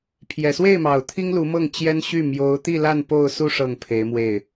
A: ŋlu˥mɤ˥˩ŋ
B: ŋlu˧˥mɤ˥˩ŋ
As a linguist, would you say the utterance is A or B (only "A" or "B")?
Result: B